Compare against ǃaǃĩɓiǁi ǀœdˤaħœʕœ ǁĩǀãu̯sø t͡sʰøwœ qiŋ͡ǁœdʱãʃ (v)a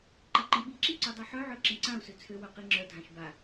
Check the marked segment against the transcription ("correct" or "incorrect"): incorrect